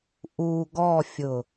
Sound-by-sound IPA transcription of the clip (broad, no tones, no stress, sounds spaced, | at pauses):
ʔ u ɡ ɔ fʲ ʊ